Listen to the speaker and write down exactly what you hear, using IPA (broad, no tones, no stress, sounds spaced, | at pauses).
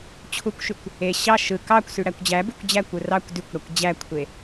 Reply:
t͡ɕʰ u kʷ ʃ y kʷ | e ɕ ɑ ʃ ɯ k ɑ kʷ s y ɽ æ kʷ d͡ʑ æ b y kʷ d͡ʑ æ kʷ ɯ r ɑ kʷ d y kʷ ɽ æ kʷ d͡ʑ æ kʷʰ e